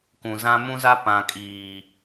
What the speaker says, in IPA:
kũ˨zã˦ mũ˦za˦ pã˨kʼiː˨

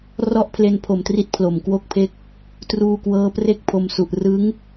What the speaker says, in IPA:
rɔ˥˩ʔpʰle˧npʰo˨˩mtri˦˥t̚ pʰlo˨˩mkwo˥˩k̚pʰe˥˩k̚ | truː˧kwɤː˦˥pre˥˩k̚ pʰo˧msu˨˩ʔ rɯ˦˥ŋ

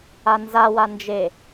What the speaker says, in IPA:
anzawa nd͡ʒe

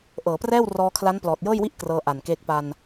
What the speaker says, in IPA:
ʔɤː˩˦prɛː˥˩w rɔː˧kʰla˦˥n plɔː˨˩t̚jɤː˥˩jwi˥˩ʔ krɤː˧ ʔa˨˩nkeː˦˥k̚ pa˧n

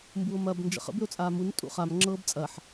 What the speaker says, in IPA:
mbuo̯mɐːbnd͡ʒə̰χə̰b ʏo̯t͡sʼaːmun tʼṵχam ŋ͡ǁɤːbt͡sʼɐħ

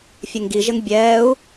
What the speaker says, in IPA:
fʲeŋɡiʒɘŋ bʲɛːu̯

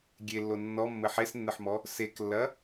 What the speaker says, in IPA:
ɡʲelːo nːɔmːɘ ħesnːɘħmɔ | seklːɐ

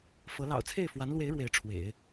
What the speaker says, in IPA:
fɤ˧˥ lɑ̰˨˩ʊ̯t͡sʰe˥˩ɪ̯fwa˧˥nlwe˧˥ɪ̯ ɻwe˧˥ɪ̯ʈ͡ʂʰwḛ˨˩˦ɪ̯

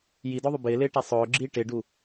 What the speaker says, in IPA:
jidɔðˤʊ bɪːlɪːʈa sˤʊːɡ͡ǁiː ʈɪɖu

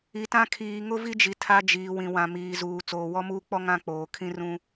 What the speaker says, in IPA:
i˨tã˦ kʰiː˨ŋʊ˦vi˦d͡ʒi˨ tʰa˦ d͡ʒiː˨wĩ˨ wã˨miː˨zuː˨ t͡soː˨wɔ˦muː˦k͡pɔ˦ ŋã˦k͡poː˨ kʰĩ˦rũ˦

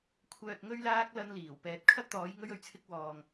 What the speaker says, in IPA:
kʷʰœː˨t̚ŋɵ˧ɥlaː˧k̚ lɐ˧nliː˨˩w pɛː˨˥t̚kʰɐ˥t̚t̪ɔː˨˥j ŋɵ˧ɥɵ˨ɥt͡sʰɪ˧k̚ wɔː˨ŋ

